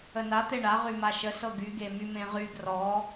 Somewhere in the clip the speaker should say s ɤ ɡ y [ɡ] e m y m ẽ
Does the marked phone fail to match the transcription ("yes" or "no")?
no